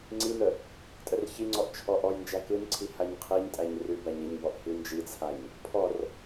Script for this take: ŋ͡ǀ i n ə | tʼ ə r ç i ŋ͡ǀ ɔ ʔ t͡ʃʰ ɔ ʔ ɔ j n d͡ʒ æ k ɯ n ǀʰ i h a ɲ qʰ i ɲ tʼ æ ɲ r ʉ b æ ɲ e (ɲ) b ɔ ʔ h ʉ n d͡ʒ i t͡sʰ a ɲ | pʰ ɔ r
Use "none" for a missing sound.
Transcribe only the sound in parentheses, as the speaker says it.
ɲ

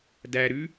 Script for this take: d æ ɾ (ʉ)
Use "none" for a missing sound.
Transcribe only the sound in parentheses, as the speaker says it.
ʉ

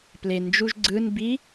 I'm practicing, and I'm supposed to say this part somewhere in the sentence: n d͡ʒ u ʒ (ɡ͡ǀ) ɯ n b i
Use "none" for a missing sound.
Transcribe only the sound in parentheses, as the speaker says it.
ɡ͡ǀ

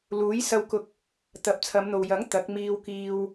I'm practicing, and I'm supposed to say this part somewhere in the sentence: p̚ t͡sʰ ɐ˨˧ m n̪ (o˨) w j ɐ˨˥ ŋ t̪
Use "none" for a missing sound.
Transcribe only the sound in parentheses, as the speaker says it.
o˨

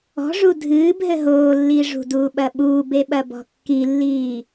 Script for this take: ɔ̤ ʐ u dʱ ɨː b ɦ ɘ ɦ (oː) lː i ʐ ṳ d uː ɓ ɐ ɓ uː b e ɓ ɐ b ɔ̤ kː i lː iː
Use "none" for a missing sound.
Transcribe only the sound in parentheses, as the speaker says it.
oː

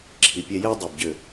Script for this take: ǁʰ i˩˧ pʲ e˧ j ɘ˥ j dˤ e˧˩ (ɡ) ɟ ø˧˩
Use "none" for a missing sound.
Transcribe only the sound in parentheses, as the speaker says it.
b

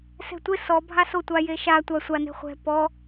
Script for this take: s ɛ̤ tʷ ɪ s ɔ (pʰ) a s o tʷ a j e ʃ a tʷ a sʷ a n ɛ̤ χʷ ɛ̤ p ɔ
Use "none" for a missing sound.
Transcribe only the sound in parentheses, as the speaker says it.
bʱ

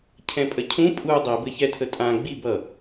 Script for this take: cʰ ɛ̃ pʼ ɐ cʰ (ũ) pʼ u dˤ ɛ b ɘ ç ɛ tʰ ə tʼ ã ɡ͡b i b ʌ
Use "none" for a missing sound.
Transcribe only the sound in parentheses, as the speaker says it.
ũ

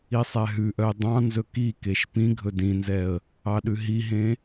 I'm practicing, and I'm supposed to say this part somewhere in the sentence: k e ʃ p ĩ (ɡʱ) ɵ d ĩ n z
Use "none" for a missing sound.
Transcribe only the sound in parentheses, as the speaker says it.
ɡʱ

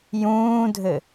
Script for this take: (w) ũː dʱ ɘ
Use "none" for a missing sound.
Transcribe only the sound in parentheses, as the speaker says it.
j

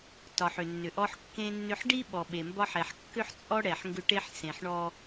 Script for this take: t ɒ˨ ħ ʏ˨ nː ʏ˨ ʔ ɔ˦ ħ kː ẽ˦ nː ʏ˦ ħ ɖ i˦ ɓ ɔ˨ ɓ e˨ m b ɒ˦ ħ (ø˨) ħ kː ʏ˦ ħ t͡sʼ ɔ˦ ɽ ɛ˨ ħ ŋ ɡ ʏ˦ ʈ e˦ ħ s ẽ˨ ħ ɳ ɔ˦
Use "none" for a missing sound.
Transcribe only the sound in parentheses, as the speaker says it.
ɛ˨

